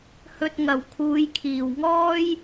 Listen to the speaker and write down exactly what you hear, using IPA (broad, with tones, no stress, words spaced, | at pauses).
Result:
hɵ˧t̚ŋɐ˨˩w kʰuː˨˧jkʰiː˨˩wŋɔː˥j